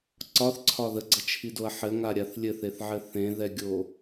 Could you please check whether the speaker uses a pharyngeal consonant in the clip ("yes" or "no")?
yes